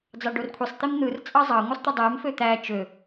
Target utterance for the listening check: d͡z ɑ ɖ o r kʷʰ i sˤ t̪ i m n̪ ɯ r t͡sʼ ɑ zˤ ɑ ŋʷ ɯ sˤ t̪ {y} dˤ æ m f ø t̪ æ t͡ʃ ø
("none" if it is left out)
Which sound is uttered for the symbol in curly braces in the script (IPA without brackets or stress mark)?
y